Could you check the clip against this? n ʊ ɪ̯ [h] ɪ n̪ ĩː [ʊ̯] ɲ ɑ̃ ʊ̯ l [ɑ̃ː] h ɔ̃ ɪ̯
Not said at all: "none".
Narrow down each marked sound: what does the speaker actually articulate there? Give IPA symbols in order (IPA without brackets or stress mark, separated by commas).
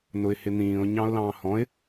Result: h, ʊ̯, ɑ̃ː